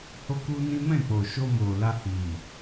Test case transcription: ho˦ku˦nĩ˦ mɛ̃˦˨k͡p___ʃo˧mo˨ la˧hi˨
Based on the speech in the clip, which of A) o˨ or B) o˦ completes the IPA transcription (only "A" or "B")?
A